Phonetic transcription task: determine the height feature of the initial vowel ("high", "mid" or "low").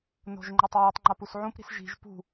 mid